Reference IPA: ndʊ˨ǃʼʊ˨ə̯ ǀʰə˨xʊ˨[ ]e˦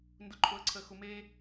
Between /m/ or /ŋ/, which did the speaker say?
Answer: m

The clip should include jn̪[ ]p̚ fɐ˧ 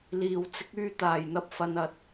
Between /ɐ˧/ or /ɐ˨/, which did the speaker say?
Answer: ɐ˧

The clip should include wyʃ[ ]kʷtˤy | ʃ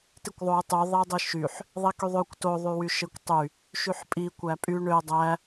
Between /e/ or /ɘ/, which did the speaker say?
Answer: e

